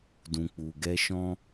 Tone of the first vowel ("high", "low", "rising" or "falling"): low